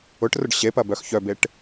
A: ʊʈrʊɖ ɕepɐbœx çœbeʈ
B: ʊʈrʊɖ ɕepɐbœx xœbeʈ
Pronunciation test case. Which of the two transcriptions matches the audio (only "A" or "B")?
A